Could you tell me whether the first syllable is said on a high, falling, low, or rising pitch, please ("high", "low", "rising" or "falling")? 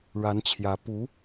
rising